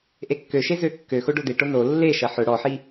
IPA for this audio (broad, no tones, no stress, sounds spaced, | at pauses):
ʔ e kː ø ʃ e z ø kː ø x o ɖ o d̪ e ʈ o n o lː e ʃ ɐ ħ ʊ ɽ ɔ ħ i